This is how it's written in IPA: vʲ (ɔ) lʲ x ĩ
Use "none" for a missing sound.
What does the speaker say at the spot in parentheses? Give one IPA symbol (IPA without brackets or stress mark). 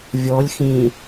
ɔ